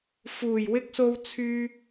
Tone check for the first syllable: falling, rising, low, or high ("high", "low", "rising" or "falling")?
low